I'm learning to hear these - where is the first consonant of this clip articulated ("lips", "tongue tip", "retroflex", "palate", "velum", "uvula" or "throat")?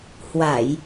throat